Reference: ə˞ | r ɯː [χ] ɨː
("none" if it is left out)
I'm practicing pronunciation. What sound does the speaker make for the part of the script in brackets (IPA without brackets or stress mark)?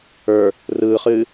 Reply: χ